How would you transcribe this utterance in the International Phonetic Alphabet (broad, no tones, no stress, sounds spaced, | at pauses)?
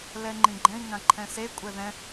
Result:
l ɛ ŋ͡ǃ ĩ ɡ͡ǃ ɛ̃ i̯ ŋ ã ǃʰ ɛ̃ s e kʷʼ ɛ ð ɛ̃